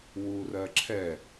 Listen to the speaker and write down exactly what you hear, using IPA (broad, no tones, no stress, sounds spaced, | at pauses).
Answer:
w u r ɜ ǁʰ ɛ